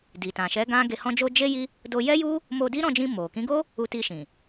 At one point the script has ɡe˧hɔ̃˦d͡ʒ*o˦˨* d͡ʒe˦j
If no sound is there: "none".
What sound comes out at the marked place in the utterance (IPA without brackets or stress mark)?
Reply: o˦